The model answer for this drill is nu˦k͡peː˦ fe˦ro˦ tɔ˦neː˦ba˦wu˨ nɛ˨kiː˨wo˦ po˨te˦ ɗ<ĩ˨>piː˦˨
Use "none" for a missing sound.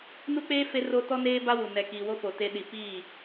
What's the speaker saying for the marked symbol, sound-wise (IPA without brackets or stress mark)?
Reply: i˨